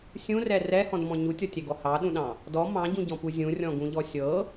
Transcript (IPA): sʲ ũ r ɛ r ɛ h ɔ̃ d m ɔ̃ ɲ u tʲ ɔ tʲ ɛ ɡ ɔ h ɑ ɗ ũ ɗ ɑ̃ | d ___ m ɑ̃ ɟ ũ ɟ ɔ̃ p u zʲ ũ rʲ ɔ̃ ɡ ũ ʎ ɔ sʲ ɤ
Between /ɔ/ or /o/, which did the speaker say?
ɔ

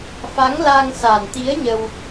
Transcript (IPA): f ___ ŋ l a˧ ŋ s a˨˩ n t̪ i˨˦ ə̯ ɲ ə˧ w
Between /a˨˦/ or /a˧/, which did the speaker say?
a˨˦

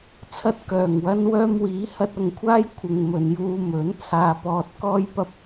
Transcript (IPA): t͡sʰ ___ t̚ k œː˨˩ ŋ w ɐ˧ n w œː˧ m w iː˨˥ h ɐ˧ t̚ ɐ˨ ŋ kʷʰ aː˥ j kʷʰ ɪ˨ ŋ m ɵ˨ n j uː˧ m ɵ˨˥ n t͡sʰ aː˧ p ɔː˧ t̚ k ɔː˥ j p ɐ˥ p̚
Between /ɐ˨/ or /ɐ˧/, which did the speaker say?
ɐ˧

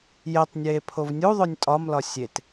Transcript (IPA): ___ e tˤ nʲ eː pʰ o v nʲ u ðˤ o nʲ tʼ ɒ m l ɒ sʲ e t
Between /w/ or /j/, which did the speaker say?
j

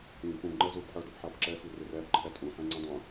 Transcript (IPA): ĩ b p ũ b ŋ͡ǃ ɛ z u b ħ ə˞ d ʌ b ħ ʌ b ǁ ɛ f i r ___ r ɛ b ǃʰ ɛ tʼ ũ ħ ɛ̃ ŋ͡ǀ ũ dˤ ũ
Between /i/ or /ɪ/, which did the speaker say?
ɪ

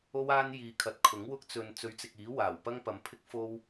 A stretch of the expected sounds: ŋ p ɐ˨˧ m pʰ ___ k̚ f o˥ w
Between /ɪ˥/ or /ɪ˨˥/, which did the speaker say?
ɪ˥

